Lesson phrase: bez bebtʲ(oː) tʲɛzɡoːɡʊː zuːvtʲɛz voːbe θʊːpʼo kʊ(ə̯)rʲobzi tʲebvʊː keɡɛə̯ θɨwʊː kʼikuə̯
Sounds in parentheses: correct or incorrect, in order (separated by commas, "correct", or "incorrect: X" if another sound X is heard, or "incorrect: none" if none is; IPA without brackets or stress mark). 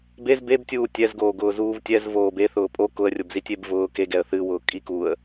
incorrect: uː, correct